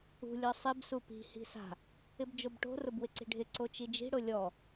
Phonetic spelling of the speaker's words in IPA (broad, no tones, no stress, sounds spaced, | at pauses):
ṳ lʲ ɔ sˤ ɪ b s u p i̤ h i̤ s a̤ | ɪ b d͡ʒ o b ʈ o̤ r ʊ b w ɪ ǀ i̤ ɖʱ ɪ ǀ o t͡ʃ i d͡ʒ i̤ ɽ ʊ lʲ ɔ